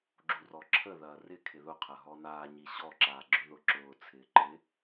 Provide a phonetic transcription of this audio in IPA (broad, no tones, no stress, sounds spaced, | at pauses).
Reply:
ɡ͡ǁ u r ɔ ǁʰ ə ð ɐː r ɪ kʰ ɪ ð ʊ qʰ ɐ ɦ ɔ n aː ɲ i ɕ ɔ ǁ aː ɡ͡ǁ ʏ ð ʊ ǁ ʊː t͡sʰ ɪː ǃ ɪ